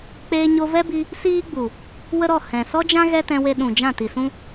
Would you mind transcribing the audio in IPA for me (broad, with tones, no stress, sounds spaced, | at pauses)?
k͡p eː˧ ɲ o˧ v ɛ˦ b i˧ | s iː˦ ɡ͡b u˨ | w ə˦ ɾ ɔ˦˨ h ɛ̃˨ s ɔ˦ d͡ʒ ã˦ ɣ ɛ˦ t ɛ̃˧ w e˧ ɗ ũ˨ d͡ʒ ã˦˨ t i˨ s ũ˦